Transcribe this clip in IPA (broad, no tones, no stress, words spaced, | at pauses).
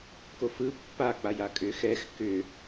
kofɯ pːa k͡pajakʼʏ xɛx kʏ